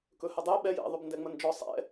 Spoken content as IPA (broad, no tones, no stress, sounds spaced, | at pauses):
k ɵ h ə dˤ ɛ ɓ ɛ j ɛ̰ ðˤ ɵ b n d ɛ ŋ͡m ə n d͡ʒ ɔ sˤ ɛ̰